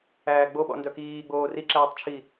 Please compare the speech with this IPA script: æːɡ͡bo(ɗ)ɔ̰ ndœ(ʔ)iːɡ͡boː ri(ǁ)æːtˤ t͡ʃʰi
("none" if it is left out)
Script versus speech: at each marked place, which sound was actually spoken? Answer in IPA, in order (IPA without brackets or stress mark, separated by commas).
ɓ, k, ǁ